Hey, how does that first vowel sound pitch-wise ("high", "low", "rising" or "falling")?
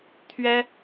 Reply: high